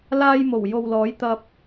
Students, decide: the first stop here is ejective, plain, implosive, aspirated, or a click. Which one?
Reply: plain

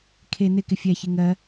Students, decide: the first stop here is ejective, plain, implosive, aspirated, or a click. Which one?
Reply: aspirated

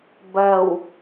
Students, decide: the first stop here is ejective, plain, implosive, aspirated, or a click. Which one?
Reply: plain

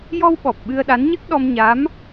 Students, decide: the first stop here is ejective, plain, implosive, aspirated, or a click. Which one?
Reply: implosive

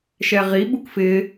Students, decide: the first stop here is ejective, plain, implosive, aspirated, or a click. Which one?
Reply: implosive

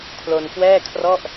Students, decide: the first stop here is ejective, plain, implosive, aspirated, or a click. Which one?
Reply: aspirated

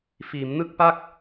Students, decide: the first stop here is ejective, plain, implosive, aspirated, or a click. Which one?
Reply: plain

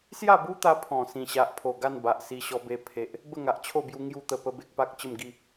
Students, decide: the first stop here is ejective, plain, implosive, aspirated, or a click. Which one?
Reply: plain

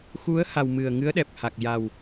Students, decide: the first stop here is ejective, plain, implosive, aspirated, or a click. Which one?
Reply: implosive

